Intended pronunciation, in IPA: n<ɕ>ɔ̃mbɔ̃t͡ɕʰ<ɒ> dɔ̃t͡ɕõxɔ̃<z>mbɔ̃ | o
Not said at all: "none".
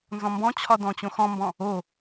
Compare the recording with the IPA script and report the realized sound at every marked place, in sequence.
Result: z, ɒ, none

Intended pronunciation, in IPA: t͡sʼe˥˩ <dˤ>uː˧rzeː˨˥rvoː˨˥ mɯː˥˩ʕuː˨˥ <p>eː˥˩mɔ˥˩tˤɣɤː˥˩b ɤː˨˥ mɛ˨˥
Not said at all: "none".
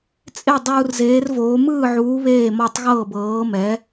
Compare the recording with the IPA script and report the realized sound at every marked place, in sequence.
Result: dˤ, β

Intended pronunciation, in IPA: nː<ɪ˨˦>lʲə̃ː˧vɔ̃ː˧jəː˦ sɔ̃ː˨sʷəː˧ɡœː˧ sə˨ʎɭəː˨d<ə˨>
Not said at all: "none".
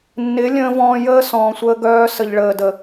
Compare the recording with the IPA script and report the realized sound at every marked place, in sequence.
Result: ɪ˨˦, ə˨

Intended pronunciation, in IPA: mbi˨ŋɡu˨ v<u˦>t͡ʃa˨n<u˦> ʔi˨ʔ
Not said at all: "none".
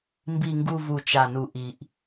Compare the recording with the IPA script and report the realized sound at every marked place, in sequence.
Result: u˨, u˨

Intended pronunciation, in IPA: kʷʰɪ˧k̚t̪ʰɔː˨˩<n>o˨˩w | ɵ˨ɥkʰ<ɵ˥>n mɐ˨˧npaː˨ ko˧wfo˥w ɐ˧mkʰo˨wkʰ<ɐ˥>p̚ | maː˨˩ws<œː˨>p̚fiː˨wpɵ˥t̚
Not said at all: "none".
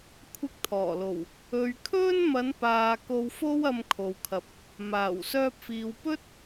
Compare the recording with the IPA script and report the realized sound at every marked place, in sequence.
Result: l, ɵ˥, ɐ˨, œː˧

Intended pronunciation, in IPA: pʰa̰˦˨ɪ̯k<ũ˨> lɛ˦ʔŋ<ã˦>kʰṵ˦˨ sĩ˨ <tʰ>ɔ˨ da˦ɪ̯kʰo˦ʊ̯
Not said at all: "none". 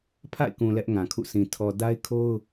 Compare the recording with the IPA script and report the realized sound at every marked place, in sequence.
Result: ũ˨, ã˨, tʰ

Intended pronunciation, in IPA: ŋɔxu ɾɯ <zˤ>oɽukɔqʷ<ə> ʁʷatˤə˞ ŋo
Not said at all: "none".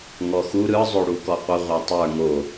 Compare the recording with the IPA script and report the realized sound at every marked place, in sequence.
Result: zˤ, ə

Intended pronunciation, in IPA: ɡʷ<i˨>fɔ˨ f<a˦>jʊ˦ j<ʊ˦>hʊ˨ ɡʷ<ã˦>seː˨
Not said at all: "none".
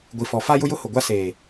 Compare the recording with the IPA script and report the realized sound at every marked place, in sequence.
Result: i˨, a˦, ʊ˦, a˦

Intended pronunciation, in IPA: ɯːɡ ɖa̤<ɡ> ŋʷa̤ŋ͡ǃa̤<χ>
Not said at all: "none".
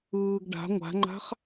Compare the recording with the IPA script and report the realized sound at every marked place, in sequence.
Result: none, χ

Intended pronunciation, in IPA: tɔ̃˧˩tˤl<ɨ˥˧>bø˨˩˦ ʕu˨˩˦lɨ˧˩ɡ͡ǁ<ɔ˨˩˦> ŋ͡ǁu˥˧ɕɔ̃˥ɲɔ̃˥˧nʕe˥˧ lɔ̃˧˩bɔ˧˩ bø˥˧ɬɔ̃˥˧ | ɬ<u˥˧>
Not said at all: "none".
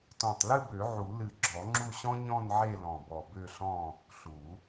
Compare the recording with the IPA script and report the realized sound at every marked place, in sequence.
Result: ɨ˥˧, ɔ˨˩˦, u˨˩˦

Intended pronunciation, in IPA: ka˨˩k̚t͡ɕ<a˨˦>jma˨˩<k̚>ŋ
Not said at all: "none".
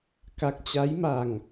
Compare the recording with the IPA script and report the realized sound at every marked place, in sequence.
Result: a˨˦, none

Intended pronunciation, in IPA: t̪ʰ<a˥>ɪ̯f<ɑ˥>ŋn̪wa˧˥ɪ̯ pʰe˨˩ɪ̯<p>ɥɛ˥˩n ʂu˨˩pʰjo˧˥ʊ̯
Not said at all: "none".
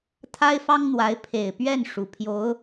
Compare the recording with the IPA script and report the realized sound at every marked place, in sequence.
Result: a˥, ɑ˥, p

